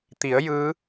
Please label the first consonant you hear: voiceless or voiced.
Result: voiceless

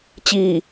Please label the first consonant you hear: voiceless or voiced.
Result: voiceless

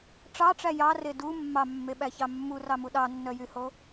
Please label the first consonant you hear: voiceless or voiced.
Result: voiceless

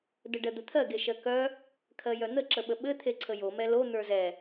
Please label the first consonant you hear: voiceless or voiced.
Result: voiced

